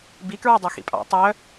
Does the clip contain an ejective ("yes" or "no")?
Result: yes